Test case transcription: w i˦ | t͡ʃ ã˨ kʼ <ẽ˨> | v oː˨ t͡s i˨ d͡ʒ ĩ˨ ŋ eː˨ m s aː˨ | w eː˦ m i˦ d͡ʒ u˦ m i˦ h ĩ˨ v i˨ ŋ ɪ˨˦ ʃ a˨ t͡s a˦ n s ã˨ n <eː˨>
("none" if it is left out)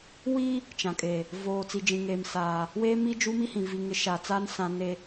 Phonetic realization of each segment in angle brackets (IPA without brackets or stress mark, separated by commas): e˨, e˨